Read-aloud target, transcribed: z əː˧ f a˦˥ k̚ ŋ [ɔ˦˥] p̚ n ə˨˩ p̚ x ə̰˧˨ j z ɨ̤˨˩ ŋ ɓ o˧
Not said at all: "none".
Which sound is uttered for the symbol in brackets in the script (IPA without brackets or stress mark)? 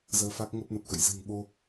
ə˦˥